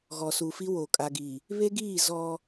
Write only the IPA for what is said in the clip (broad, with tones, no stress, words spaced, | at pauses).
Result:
ɣɔ˨su˨fi˦wo˨ kʼa˨ɡi˨ | βe˦ɡiː˦˨ zɔ˦